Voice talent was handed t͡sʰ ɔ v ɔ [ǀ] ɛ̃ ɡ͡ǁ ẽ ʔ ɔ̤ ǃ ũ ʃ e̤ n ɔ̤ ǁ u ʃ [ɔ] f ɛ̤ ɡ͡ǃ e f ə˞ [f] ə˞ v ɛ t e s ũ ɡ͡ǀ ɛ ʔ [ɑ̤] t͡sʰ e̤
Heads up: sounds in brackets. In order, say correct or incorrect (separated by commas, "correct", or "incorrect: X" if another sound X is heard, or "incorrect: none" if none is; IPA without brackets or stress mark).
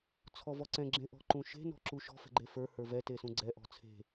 correct, incorrect: ɔ̤, incorrect: h, incorrect: ɔ̤